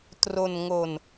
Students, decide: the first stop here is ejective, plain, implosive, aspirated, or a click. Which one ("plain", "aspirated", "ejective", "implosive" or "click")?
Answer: plain